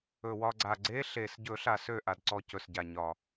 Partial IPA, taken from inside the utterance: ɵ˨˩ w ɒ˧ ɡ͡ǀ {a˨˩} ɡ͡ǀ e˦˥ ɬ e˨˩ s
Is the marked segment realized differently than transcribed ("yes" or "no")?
no